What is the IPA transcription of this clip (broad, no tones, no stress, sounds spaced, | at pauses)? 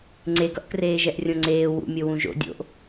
ŋ͡ǀ e ɡ ʌ ʔ k r eː ʒ ɛ ʔ rʲ õ ŋ͡ǀ eː w ṵ mʲ o w ũ ʒ o̰ dʲ o̰ ʔ